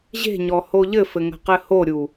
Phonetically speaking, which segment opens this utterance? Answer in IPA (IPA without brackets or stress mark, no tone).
ʑ